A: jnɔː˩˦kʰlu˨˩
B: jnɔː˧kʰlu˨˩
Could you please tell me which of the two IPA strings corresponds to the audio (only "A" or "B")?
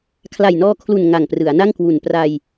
B